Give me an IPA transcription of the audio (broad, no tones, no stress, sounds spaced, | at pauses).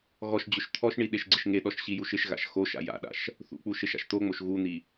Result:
ɣ ɔ ʃ d͡ʑ ʊ ʃ t̪ʰ ɔ ʃ ɳ i ɗ e ʃ ɡ͡ǀ ɪ ʃ ŋ e ɗ ɔ ʃ ɕ i j u ʃ ɪ ʃ ɣ a̰ ʃ x o ʃ a̰ j a̰ ɗ a̰ ʃ | θ ṵ k͡p u ʃ e ʃ a̰ ʃ t̪ o ŋ͡m o ʃ ɣ u n̪ i